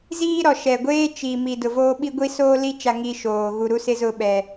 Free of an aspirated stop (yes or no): yes